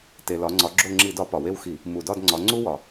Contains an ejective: no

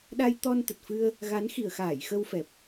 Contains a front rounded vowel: no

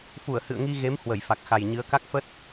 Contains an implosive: no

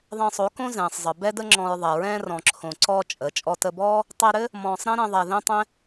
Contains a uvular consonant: no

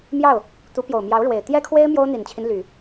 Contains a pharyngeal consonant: no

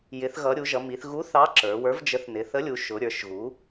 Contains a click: yes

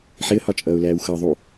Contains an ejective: yes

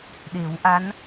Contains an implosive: yes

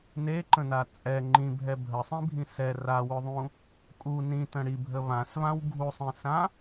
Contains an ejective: yes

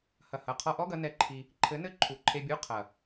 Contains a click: yes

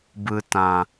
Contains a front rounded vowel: no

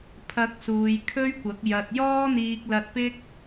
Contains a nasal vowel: no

